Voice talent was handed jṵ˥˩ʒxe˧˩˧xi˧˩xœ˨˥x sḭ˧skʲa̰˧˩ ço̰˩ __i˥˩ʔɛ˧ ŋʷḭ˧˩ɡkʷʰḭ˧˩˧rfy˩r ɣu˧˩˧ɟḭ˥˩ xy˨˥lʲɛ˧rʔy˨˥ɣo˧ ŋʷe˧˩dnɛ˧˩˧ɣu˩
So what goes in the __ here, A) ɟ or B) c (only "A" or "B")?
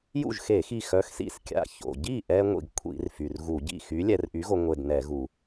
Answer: A